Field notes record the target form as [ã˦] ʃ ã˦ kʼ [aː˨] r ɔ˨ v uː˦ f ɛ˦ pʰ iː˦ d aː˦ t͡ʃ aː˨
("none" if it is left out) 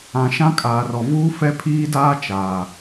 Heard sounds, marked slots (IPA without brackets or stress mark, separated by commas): ã˨, aː˨